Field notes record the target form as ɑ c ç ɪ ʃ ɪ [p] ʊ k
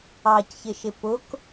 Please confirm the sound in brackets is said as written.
yes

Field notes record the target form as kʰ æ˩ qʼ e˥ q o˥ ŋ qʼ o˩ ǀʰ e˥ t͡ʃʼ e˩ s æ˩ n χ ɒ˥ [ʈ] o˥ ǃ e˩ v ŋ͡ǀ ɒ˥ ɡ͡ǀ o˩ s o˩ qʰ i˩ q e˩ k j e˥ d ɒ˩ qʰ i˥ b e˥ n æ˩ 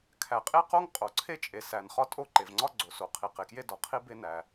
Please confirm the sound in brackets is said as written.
no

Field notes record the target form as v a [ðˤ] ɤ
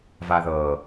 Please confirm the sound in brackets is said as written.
no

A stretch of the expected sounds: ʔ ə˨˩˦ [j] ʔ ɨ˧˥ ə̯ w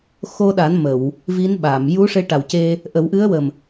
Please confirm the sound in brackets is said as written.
no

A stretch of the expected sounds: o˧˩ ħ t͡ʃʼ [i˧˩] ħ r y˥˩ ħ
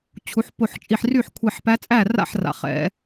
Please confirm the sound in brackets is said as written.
yes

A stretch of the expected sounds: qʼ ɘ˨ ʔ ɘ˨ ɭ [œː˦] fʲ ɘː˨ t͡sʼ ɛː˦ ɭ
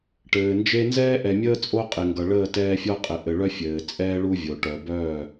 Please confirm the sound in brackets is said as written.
no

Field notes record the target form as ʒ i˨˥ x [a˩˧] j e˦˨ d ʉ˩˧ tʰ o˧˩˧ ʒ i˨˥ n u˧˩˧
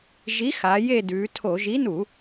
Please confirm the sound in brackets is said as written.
yes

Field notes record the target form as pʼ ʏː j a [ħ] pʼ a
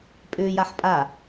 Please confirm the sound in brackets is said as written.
yes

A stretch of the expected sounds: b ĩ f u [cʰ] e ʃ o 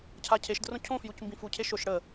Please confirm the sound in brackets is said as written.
yes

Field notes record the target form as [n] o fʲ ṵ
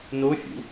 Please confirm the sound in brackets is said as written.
yes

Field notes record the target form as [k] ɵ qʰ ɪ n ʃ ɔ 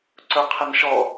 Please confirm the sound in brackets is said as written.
no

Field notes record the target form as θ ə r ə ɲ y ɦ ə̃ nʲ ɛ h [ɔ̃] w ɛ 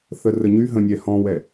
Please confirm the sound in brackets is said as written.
yes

